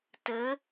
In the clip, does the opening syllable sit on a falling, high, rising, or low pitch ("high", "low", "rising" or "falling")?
rising